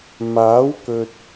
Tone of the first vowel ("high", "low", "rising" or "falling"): rising